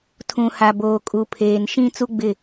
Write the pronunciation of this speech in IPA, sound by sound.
tʰũ˨ha˨boː˨kʼu˨ pʰeː˨nʃĩ˦ t͡su˦ɡ͡bɪ˦˨

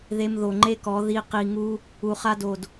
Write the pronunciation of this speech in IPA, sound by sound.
ðe˧mðo˨ŋ͡ǃe˦kɔ˨˦ ði˧ qi˧ŋu˦ | u˨χa˧do˨d

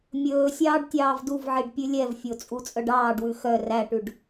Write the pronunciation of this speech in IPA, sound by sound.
mʲɵːsʲɑːɖ tʲɑːvduvʕiɖ pʲʉlʲɛvfʲo t͡sʼut͡sʼœɖɑːɖwʉ xœ ræʈʉɖ

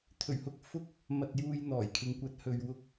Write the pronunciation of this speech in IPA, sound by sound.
t̪ʰɵ˨˩ɥhʊ˧k̚ fʊ˥k̚ | mɐ˨t̚juː˨j n̪ɔː˨˩jkʰɪ˨ŋkʷɐ˨˥t̚ hɵ˨ɥwʊ˧k̚

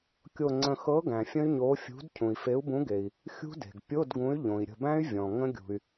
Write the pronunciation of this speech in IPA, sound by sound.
kʲo˧˩ŋ͡ǀə̃˧˩ xɤ˨˥ ɡæ̃˩fʲə̃˦˥y̯ɲoː˨˥ fʲṳ˨˥d cʰũ˩i̯fe˨˥u̯bũ˨˥ɡe˩i̯ | xʲṳ˦˥de̤˩ɡ pʲo˧˥˧dɡũ˨˥y̯ ʎõ˩i̯ɾʲə̤˧˩bæ̃˦˥y̯ vʲɔ̃˩ ŋə̃˦˥ɡʲṳ˩y̯

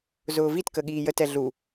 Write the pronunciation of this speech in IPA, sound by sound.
zʊːvitkə ɠiːjətɛ ɮu

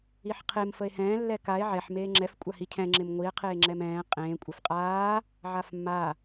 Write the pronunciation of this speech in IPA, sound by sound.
iħqʰem fəe̯hɛ̃ː lːɛkae̯ ʕɛħ meːŋ͡ǁɛf kʷʼahicʰɛ̃ ŋ͡ǁɪmŋʷie̯ qʰeːŋ͡ǁɛmɛ̃ː qʼẽː kʷʼɛfqʼaː | ʕafmːa

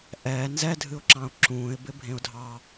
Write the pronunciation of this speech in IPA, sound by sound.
ʔɛː nzɛdʱɨʊ̯ǁɑ̃ʊ̯ ǁũːɪ̯bɪ bʱẽʊ̯dʱɑ

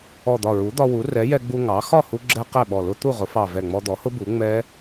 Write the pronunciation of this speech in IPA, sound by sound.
ɔ˧˩d̪ɒ˧˩ɹu˩˥ d̪ɒ˧wu˩˥ rɛ˩˥jɛ˧ɡ͡bu˧ ŋɑ˩˥ xɒ˥˩hu˧ɡ͡ǁɛ˧ qɛ˥˩ɓɔ˧˩lʊ˦˥ t̪u˥˩ʁʊ˩˥fɑ˧˩ vɛ˧˩ŋ͡mɔ˧d̪ɔ˩˥hʊ˦˥ bu˩˥ ŋ͡mɛ˦˥

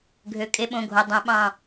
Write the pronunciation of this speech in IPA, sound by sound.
ɡʱø˩˧˩ kʼe˧ɓõ˩˧˩ɡʱo˩˧˩dˤõ˧˩˧ ɓɑ̃˧˩

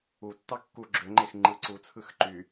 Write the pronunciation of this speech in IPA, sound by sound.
utːɑ kːu ɡ͡ǁøŋ͡ǃex ŋ͡ǃɯǀut͡sʰɯx ǃy

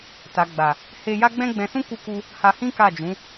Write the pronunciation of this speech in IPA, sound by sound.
ta˨ɡ͡ba˨ | he˧ja˦ ɡ͡bɛ̃˦ɡ͡bɛ̃˧sũ˦ ku˧ku˧ | ha˧hĩ˦ka˦˨d͡ʒũ˨˦

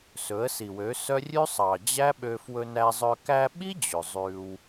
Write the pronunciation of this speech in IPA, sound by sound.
sɵ˨˦ə̯si˨wø˨˦ sœ˦ rʲʉ˦sˤɑ˨d͡ʑæ˦ ɓø˧fwɵ˧ næ˧zˤœ˧ kæ˧ɓi˦ d͡ʑø˨zˤʉ˧w

